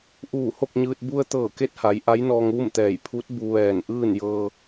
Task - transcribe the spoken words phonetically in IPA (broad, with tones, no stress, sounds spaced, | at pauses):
ʔ uː˧˩ h o˥˨ k̚ ɲ ɯː˧ t̚ b u˧ ə̯ t̪ ɤː˧˩ k e˧˥ t̚ h a˩˧ j ʔ a˧˥ j n ɔː˧ ŋ ʋ u˥˨ m t̪ ɛː˧˩ j pʰ u˧˥ t̚ b u˧ ʋ ɛː˧˩ n ʔ ɯː˥˨ n j ɤː˧